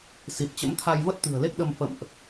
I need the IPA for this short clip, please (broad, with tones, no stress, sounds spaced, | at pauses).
s i˨˩ t̚ t͡ɕ ə̰˧˥ m t̪ʰ a˧ j v ə˦˥ t̚ t̪ ɨ̤˨˩ ə̯ l e˦˥ k̚ ɗ ə˧ m f ə̰˧˨ m ʔ